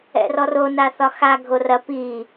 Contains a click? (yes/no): no